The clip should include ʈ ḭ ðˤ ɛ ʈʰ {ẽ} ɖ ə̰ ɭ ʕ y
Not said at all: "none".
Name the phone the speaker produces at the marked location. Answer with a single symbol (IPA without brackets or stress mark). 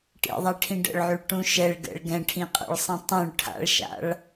ĩ